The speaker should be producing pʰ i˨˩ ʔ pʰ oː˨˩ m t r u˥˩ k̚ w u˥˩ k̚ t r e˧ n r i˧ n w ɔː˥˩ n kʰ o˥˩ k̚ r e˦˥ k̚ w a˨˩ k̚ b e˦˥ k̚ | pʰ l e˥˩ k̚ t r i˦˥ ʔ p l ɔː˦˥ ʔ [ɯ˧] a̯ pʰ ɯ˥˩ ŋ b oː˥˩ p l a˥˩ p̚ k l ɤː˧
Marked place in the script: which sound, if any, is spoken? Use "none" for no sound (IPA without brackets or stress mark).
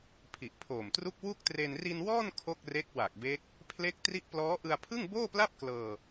ɯ˧